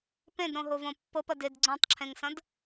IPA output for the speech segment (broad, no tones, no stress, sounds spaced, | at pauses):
p ẽ d ɾ õ ɦ o v õ pː ɤ p ɐ d e d ɡ͡ǀ õ tˤ ǁʰ ẽ ŋ s ɐ̃ d